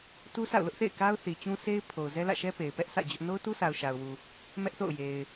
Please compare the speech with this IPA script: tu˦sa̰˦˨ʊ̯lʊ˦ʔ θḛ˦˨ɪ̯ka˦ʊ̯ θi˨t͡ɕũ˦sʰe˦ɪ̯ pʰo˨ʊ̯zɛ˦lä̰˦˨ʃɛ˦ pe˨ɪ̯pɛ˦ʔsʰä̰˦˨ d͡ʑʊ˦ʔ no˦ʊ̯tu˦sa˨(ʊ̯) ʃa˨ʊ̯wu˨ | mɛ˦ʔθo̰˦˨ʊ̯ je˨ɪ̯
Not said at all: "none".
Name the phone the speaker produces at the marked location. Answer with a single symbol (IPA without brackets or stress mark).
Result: ʊ̯